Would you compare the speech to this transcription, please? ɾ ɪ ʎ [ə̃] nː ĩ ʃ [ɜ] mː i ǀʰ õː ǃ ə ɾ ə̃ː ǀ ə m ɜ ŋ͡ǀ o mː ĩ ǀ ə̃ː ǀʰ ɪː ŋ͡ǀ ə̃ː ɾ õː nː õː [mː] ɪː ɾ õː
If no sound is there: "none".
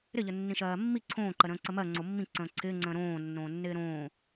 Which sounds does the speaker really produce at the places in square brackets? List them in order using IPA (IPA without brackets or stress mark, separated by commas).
ə, ɜː, nː